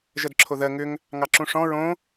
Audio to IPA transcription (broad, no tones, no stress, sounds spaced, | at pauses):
ʒ ɜ d ǁʰ o ð ɜ ŋ ʏ ŋ | ŋ ɑ ǁ ũ ʂ ɔ̃ ɹ õ